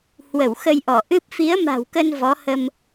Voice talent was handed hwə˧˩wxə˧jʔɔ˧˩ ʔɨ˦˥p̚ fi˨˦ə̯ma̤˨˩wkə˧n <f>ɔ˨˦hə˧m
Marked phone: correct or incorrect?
incorrect: v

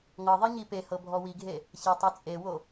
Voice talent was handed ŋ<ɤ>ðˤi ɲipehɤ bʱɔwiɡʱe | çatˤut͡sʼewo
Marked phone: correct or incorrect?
correct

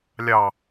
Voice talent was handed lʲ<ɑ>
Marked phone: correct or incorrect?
correct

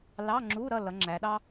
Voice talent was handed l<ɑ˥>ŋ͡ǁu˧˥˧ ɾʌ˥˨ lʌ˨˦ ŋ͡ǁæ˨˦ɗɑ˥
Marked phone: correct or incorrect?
incorrect: ɑ˧˥˧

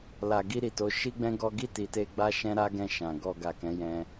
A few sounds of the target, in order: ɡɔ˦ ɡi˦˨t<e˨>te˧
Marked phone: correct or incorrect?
incorrect: i˨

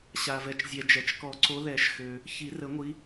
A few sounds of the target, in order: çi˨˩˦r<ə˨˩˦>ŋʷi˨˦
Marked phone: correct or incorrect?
correct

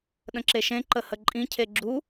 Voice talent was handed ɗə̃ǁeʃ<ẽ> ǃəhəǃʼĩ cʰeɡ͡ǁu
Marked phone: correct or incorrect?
correct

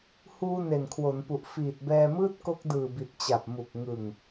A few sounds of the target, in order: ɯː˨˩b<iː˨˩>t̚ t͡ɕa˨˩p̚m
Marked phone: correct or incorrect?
incorrect: i˨˩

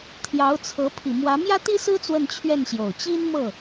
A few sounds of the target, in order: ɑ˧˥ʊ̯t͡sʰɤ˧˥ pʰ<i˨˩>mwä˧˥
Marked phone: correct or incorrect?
correct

